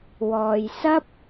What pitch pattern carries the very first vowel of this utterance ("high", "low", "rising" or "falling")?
low